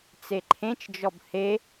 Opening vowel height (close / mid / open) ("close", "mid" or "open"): mid